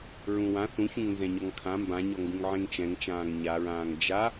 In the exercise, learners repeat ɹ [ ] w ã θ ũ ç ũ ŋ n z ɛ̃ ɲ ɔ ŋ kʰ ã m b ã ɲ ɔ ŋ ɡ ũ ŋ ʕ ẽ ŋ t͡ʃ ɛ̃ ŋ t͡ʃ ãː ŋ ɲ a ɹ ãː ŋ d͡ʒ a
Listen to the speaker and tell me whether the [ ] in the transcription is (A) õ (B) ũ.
B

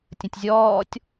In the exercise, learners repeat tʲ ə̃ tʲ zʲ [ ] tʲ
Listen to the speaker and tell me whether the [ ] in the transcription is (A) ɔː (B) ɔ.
A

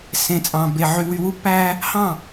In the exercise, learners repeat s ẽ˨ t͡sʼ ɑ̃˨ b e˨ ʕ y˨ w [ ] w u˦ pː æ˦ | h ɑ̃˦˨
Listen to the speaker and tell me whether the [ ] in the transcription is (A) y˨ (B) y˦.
A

